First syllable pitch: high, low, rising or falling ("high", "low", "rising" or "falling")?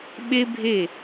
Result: high